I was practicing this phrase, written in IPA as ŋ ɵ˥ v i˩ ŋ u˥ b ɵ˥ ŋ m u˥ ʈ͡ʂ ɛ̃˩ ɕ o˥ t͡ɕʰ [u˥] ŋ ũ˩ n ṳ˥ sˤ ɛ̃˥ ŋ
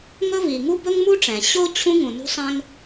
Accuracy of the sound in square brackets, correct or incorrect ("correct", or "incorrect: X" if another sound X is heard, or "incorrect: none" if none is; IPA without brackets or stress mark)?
incorrect: ũ˥